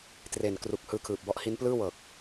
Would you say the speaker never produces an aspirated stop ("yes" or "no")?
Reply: no